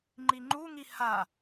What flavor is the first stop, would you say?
click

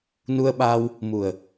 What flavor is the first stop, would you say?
implosive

